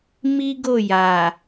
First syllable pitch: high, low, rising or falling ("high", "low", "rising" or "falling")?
high